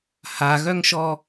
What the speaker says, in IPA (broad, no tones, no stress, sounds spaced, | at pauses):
h a ɣ œ ŋ ʃ ɔ